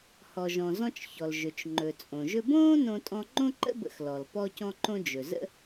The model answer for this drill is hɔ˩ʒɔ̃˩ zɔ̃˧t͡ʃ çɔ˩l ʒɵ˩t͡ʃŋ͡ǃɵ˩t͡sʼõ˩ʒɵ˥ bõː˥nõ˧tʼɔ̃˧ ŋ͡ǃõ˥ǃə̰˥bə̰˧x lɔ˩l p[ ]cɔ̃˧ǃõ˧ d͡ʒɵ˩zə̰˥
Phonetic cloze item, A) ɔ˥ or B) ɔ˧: B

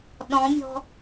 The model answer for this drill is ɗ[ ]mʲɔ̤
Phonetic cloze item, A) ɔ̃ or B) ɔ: A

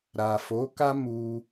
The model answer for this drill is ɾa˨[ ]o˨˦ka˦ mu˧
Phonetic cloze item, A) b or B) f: B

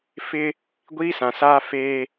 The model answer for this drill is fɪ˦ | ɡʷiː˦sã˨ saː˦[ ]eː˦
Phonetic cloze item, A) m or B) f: B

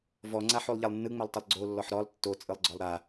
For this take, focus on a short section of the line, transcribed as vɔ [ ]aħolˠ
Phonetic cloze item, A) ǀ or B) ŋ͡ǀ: B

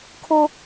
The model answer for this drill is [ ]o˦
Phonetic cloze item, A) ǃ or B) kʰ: B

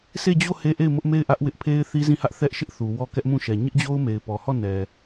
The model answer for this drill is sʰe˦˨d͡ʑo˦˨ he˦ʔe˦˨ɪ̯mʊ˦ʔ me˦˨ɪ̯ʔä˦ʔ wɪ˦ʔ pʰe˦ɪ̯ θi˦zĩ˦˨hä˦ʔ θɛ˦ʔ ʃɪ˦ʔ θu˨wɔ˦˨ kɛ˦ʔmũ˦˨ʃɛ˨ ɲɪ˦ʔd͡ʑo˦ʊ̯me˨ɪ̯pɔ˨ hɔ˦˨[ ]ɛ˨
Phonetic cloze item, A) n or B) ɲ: A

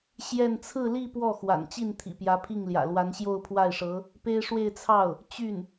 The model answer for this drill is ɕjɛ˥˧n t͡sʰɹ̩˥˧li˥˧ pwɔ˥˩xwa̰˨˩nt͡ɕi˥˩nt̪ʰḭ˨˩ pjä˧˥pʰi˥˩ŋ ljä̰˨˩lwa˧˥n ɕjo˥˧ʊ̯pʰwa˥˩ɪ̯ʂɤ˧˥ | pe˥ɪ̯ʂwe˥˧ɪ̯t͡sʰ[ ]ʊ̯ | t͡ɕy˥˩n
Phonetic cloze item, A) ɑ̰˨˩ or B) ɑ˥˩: B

